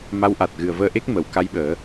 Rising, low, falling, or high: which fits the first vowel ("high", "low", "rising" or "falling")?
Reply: rising